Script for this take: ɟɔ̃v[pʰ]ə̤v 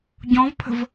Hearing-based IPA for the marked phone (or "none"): pʰ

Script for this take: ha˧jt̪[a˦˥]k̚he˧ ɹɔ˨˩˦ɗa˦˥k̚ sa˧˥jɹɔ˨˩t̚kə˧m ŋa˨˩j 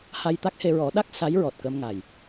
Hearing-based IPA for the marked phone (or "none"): a˦˥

